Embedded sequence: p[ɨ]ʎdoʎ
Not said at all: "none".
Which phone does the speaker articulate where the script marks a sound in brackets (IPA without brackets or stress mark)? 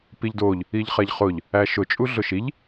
i